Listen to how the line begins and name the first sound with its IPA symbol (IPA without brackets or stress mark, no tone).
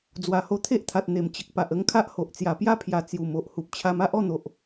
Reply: d͡z